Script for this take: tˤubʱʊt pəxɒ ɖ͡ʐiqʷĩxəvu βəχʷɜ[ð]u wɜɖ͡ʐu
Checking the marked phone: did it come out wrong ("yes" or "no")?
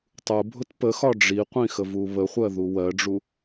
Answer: no